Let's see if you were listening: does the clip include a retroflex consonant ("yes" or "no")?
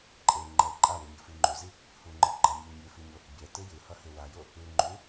no